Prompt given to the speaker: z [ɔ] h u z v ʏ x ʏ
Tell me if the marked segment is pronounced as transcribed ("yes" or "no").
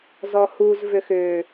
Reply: yes